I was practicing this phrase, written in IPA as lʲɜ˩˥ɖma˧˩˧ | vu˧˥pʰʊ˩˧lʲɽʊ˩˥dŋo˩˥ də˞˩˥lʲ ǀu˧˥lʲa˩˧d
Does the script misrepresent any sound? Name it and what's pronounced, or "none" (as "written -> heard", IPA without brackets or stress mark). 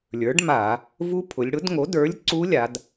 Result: ɜ˩˥ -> ə˞˩˥